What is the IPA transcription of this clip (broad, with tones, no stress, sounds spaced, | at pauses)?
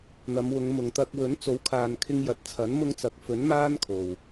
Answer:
n̪ ɐ˨˧ m w ʊ˨˧ ŋ m ʊ˨ ŋ t̪ ɐ˧ k̚ w ɵ˨˥ n t͡s o˨˥ w kʰ aː˨ n kʰ ɪ˧ ŋ j ɐ˨ t̚ t͡sʰ ɐ˨˥ n m ʊ˧ ŋ t͡s ɐ˨ k̚ f ɵ˨˥ n m aː˥ n kʰ o˨ w